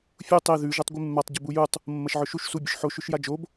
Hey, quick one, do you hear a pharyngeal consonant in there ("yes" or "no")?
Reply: yes